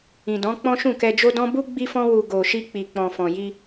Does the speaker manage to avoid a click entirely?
yes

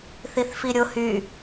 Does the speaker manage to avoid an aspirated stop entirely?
yes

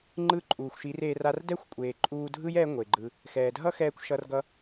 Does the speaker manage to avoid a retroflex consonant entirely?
yes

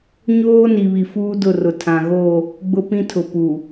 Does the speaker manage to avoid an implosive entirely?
yes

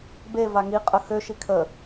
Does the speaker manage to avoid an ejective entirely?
no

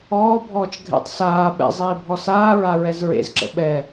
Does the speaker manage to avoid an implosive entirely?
no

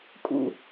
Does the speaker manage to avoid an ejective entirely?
no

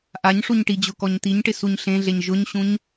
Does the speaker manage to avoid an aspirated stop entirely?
yes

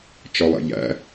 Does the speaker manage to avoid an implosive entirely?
yes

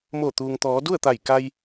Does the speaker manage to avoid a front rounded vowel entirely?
yes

